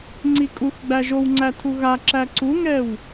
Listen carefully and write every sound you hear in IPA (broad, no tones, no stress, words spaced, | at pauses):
ŋ͡ǀikʼux ɡ͡bæʒowŋ͡ǀæ tʰuɣaǁæ ǀuŋɛw